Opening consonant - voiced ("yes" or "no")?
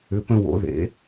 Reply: no